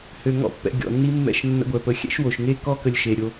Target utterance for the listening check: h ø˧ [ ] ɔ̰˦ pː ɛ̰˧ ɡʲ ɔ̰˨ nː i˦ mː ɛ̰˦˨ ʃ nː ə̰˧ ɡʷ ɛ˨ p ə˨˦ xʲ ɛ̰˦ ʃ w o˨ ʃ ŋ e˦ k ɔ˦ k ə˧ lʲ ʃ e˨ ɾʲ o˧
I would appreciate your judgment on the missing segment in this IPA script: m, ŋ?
ŋ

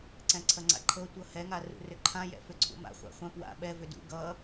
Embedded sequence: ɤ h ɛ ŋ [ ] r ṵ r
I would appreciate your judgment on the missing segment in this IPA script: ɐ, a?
a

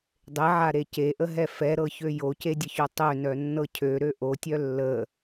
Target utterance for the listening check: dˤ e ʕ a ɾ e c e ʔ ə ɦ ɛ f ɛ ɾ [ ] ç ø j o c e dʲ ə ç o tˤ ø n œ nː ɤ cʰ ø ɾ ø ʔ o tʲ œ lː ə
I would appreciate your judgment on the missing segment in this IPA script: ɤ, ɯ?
ɤ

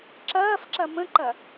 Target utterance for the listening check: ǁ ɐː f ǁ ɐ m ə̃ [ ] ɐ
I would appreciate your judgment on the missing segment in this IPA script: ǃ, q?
ǃ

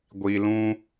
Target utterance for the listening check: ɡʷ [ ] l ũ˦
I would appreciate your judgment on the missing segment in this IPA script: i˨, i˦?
i˨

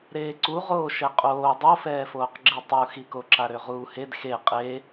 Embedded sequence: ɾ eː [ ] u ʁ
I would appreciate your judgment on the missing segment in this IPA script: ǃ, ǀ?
ǀ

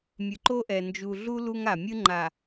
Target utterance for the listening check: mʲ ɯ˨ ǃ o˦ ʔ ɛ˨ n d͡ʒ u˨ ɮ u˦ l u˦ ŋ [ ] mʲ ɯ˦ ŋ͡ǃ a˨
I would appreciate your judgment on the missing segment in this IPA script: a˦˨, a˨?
a˨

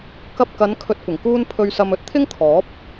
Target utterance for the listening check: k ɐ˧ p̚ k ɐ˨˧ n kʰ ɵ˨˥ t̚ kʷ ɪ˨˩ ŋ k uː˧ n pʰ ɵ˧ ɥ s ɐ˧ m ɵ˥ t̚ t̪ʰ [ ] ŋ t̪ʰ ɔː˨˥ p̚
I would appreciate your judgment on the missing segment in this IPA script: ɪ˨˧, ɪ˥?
ɪ˥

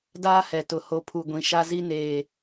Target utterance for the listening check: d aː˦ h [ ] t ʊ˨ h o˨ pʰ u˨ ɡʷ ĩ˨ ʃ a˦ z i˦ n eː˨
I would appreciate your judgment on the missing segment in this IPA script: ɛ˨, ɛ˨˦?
ɛ˨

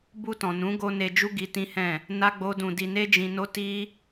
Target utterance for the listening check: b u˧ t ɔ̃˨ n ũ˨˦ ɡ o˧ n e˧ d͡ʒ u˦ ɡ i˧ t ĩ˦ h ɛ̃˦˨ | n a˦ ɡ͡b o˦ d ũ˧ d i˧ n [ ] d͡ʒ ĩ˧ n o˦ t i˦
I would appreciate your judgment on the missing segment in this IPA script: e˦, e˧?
e˦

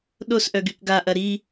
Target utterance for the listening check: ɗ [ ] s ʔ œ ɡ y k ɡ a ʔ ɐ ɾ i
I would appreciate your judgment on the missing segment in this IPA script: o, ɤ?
o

